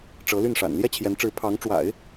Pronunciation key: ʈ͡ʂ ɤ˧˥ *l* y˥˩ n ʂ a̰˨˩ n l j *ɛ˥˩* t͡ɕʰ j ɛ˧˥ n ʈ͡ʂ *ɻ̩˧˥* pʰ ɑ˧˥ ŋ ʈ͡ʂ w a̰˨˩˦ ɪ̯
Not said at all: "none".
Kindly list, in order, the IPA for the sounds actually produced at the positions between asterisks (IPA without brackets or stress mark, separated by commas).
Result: l, ɛ˥, ɻ̩˧˥